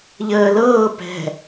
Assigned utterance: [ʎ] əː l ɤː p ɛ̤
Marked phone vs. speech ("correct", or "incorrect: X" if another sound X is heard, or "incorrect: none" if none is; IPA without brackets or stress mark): correct